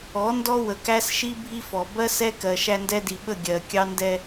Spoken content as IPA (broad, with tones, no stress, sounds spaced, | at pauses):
ɔ˨˦ n d ɔ˦ w ə˨ k æ˦ s ʃ i˦ bʱ i˦ f ɔ˨ b ɜ˦ s ɛ˦ k ɜ˨ ʃ æ˦ n d ɛ˦ d i˨ ɓ ə˦˨ ɡʲ ɜ˨ kʲ ɑ˦ n d ɛ˦